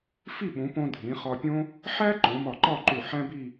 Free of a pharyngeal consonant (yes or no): no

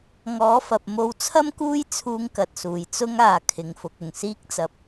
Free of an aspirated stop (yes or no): no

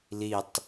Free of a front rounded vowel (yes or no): yes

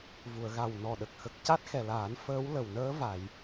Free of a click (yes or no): yes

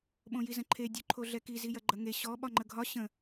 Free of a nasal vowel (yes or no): no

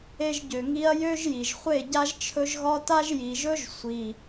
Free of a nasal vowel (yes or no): yes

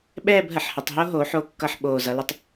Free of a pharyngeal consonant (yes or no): no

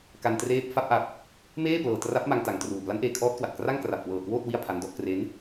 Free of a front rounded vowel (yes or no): yes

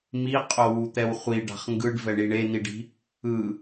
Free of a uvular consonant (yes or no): no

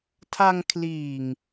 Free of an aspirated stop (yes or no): no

